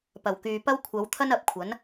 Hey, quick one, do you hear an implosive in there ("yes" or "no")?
no